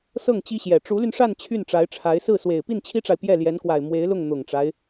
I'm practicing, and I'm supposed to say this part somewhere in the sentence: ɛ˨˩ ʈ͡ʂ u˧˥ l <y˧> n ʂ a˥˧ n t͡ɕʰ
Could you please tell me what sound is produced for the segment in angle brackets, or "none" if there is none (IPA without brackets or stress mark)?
y˧